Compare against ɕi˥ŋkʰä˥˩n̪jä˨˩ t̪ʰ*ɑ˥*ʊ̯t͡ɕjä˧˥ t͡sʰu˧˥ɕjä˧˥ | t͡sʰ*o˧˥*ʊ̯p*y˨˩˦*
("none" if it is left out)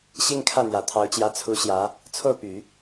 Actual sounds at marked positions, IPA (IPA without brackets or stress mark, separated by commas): ɑ˧˥, o˥˩, y˨˩˦